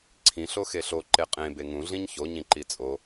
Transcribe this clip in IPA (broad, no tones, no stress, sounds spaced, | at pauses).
ǀʰ ĩ ɬ o x e ɬ o ǃ e qʼ ẽ b e ŋ ũ ɮ ĩ ɲ ç o ɲ ĩ ǃ i t͡sʼ o